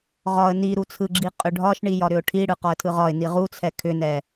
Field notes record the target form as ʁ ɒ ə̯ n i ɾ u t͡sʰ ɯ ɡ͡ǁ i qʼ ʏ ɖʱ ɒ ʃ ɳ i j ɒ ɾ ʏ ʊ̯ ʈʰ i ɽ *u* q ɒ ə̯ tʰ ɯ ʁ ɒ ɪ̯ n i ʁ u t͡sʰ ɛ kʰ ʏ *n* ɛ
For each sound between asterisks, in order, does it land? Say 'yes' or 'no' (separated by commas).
no, yes